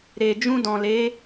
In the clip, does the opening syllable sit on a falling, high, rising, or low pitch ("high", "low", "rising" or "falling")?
low